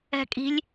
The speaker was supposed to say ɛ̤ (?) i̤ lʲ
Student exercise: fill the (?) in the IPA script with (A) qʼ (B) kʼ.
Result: B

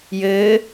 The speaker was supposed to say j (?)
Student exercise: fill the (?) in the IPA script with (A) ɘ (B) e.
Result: A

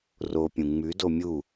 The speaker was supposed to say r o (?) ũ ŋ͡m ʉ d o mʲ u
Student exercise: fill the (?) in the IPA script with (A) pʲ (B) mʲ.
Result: A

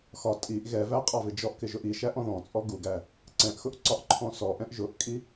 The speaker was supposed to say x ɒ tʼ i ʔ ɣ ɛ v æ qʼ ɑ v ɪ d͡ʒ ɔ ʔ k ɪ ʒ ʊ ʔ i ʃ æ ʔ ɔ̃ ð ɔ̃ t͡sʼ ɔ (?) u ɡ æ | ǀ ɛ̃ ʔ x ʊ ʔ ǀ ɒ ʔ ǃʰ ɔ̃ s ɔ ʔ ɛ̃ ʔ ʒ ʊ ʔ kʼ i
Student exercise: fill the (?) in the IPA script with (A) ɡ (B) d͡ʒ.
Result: A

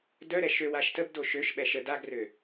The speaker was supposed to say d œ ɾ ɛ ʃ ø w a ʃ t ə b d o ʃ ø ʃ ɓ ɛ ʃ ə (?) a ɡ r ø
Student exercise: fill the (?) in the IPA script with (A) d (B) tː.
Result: A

